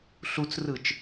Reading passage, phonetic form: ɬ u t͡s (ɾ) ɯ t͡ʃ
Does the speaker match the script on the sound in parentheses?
no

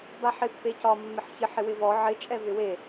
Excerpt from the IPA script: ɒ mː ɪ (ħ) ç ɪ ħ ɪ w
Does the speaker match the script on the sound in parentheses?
yes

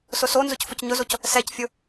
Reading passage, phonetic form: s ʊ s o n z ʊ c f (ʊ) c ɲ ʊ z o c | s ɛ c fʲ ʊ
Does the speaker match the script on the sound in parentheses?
yes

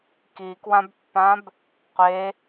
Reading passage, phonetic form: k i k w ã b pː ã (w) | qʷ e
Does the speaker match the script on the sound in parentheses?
no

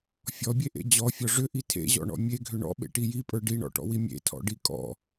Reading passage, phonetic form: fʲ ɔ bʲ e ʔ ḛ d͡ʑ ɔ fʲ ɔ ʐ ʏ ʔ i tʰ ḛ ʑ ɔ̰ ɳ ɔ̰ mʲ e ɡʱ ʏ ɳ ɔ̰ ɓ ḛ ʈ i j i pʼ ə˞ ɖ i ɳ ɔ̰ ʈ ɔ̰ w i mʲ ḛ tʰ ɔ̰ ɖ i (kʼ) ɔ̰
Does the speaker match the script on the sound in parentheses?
yes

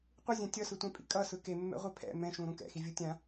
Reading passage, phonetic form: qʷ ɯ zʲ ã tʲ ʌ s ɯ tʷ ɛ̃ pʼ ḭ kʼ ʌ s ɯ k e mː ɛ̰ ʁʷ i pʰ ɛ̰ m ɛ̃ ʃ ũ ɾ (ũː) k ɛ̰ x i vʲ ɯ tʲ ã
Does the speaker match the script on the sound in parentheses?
no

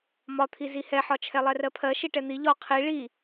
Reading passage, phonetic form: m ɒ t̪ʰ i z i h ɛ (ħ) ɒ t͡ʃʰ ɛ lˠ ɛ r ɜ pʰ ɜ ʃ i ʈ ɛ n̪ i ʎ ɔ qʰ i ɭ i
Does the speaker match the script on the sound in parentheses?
yes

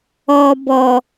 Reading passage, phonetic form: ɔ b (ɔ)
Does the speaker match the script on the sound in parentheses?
yes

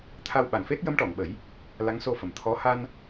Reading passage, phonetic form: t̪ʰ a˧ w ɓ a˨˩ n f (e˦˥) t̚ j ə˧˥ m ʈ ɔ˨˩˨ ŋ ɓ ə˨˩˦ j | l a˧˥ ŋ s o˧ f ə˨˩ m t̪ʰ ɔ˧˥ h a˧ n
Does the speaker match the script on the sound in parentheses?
yes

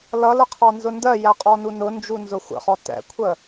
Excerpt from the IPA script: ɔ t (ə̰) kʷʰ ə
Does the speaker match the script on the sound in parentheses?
no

